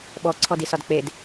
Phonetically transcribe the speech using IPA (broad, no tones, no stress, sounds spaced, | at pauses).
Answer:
ɓ ɔ ǀʰ ɔ d i s ɒ d k͡p e d